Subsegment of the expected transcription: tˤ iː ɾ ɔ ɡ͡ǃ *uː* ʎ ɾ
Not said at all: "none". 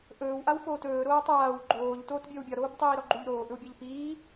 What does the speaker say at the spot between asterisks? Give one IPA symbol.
u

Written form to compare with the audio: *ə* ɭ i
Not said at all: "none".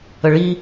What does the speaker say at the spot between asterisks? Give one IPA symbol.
ə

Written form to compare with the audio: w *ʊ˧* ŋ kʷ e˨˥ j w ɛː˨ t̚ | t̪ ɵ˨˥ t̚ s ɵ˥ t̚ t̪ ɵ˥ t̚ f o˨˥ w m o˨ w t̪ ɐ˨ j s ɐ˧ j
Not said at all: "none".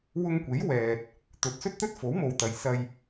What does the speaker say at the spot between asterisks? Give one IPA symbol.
ʊ˧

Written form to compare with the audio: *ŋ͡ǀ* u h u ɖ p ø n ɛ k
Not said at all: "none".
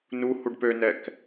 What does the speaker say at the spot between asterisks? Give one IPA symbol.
n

